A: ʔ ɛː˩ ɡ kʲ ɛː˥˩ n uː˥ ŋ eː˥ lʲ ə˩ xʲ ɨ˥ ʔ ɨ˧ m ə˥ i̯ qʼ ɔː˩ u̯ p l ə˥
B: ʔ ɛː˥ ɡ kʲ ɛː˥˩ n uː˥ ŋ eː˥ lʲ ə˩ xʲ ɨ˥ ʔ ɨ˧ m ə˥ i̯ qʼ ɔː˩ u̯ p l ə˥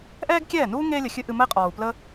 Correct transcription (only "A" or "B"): B